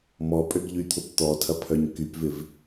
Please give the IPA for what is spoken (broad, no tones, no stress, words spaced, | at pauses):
mɔpʼøɡ ʎyt̪ʰʊp t̪ɔtʰɐ pʰœɲkypvɪv